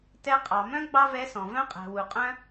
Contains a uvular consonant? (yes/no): yes